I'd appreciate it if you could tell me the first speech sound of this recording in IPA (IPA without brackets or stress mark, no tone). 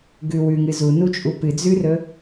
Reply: ɡ